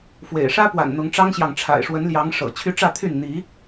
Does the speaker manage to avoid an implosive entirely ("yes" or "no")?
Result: yes